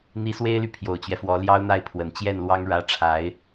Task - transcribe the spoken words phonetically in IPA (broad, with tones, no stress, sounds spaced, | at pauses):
n̪ i˧˥ s w e˥ ɪ̯ l y˨ pʰ j o˨˩ ʊ̯ t͡ɕ ɥ ɛ˦ f w ɔ˧˥ l j ɑ˥ ʊ̯ n̪ a˥˩ ɪ̯ pʰ w ə˨˩ n t͡ɕ j ɛ˥˩ n l w ɑ˥ ŋ ɻ ä˥ ʈ͡ʂʰ a˧˥ ɪ̯